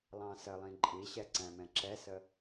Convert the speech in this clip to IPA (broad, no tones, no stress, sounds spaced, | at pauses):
lˠ ɑ̃ s ə lˠ ĩ ǃʼ i ɕ ɛ ǀ æ̃ m ɛ̃ ǁ ɛ s ə